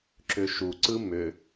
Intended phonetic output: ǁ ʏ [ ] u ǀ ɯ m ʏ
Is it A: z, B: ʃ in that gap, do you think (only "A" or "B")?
B